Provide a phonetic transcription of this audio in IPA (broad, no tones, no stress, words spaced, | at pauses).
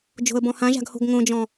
d͡ʒo̤ə̯bɔ̃hãʒa̤ɡ ho̤ɡŋõd͡ʒɔ̃